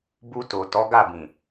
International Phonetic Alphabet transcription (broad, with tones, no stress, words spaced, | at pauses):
bu˧to˨ tɔ˨˦ɡa˦˨bĩ˨